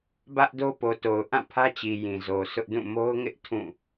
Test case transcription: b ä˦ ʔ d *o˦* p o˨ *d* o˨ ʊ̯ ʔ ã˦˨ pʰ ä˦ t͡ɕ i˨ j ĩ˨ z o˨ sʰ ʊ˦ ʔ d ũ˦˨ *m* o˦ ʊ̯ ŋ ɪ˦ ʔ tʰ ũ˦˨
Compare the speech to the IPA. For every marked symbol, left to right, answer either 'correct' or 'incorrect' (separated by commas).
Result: correct, incorrect, correct